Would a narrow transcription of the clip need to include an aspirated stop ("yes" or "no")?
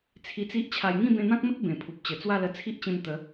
yes